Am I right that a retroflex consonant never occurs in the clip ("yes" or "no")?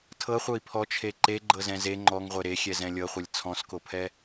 yes